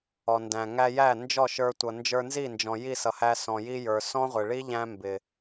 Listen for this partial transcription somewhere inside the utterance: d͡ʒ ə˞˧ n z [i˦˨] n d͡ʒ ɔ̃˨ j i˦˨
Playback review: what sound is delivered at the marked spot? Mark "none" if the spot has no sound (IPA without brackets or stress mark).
i˦˨